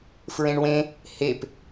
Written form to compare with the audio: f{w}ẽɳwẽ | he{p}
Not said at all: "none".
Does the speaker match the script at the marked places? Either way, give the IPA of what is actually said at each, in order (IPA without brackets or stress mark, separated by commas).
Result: ɹ, p